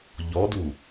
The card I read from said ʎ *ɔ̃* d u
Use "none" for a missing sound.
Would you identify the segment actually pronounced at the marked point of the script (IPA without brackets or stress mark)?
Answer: ɔ